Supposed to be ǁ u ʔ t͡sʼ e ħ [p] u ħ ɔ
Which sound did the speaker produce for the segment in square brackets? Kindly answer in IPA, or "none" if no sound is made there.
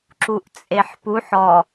p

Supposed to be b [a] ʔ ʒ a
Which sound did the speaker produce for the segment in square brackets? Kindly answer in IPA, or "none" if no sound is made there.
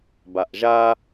a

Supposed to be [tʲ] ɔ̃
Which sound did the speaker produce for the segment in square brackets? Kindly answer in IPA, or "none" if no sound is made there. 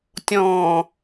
tʲ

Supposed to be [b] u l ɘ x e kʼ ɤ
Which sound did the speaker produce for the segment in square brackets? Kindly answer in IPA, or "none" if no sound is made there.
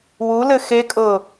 w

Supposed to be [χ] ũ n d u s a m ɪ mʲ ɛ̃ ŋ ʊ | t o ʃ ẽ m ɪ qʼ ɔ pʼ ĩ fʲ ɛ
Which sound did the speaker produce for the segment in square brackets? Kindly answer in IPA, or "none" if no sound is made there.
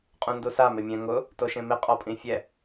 qʼ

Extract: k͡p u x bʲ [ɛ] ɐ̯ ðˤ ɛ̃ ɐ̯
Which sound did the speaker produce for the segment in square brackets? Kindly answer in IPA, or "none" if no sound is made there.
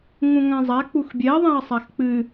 ɛ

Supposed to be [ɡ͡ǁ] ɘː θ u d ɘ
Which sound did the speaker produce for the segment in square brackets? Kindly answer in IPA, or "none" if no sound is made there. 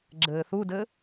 ɡ͡ǁ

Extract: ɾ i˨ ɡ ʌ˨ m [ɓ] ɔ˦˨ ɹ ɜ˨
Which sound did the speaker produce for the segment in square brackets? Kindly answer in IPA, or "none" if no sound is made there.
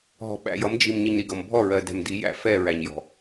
bʱ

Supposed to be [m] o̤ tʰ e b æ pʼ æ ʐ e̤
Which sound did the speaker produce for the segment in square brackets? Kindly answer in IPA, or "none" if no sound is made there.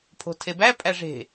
pʰ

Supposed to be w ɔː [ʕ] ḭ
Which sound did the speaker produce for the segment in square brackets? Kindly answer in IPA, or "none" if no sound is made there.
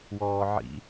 ʕ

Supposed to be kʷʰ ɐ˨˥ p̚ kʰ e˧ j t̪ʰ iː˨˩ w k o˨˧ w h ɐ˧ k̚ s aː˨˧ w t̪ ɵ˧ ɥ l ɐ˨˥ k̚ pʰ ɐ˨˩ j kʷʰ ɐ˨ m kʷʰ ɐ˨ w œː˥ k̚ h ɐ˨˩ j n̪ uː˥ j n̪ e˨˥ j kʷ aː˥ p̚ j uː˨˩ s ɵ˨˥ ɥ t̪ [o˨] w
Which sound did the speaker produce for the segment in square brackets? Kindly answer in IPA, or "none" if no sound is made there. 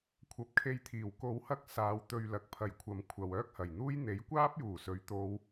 o˨˧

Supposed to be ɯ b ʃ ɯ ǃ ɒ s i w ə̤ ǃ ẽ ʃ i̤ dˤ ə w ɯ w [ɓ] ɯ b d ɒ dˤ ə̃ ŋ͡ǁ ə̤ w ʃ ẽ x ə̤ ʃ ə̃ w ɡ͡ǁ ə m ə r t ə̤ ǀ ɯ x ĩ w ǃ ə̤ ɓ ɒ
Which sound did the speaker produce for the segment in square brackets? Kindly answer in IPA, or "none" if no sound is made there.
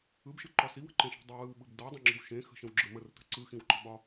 ɓ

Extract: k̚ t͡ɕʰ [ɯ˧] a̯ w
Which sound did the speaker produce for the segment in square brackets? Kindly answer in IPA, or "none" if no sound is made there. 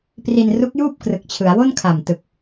ɯ˩˦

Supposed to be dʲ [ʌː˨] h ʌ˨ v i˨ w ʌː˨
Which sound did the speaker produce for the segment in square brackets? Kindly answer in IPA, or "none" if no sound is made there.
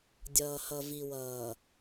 ʌː˨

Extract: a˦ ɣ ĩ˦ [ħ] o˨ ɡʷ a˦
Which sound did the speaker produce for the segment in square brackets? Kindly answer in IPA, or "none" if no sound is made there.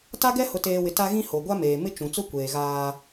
h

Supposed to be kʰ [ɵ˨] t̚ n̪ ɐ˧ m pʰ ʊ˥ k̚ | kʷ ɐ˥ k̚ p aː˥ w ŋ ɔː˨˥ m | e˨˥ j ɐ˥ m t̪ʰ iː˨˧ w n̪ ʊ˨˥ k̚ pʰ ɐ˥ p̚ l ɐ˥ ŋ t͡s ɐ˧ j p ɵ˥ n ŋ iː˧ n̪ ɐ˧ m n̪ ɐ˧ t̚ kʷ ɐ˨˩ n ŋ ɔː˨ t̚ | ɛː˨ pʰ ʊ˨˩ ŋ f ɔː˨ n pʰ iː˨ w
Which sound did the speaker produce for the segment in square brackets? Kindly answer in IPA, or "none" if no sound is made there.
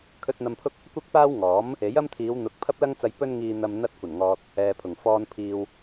ɵ˧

